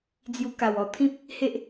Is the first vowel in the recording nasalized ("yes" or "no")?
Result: no